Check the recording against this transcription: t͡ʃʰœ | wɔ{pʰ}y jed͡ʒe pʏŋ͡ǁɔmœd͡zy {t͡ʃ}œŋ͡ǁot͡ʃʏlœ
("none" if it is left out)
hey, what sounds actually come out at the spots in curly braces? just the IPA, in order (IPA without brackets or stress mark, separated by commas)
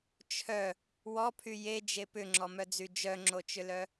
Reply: pʰ, d͡ʒ